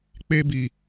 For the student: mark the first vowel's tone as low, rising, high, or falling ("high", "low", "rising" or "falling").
high